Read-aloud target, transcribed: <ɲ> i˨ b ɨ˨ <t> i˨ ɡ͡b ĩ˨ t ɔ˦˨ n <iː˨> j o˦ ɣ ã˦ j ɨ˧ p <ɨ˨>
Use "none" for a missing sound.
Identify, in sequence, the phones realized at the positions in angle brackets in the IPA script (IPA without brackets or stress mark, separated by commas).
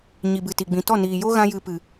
ɲ, t, iː˨, ɨ˨